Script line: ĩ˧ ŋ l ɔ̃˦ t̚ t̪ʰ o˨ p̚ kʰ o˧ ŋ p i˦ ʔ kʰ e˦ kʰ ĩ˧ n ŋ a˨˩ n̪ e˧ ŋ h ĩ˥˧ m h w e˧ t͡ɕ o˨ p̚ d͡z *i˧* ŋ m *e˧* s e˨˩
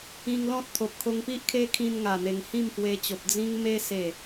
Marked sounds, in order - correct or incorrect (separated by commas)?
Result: incorrect, correct